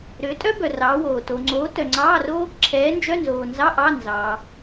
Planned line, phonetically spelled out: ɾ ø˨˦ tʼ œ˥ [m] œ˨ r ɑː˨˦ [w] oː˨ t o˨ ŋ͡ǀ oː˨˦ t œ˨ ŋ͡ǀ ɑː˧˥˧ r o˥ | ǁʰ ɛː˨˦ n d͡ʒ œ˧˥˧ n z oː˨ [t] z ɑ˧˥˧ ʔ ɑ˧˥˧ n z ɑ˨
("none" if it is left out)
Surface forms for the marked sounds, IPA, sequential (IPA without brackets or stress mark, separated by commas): b, w, n